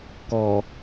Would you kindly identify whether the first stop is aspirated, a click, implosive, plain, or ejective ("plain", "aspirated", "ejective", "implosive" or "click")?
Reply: plain